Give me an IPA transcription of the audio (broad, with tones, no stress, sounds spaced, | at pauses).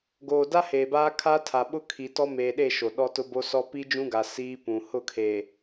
ɡ oː˨ d a˦ h eː˨ b aː˦ kʰ a˦ tʰ a˨ ɓ ʊ˦ kʰ i˨ t ɔ˦ m eː˨ ɗ e˦˨ ʃ o˨ ɗ ɔ˦ t ʊ˦ b o˦ s ɔ˦ p i˦ d͡ʒ ũ˦ ɡ a˨ s iː˦ p ũ˨ h ʊ˦˨ kʰ e˨